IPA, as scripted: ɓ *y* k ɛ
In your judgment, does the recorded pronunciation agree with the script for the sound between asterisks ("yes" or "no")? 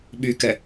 yes